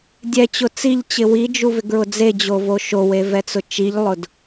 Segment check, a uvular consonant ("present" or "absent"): absent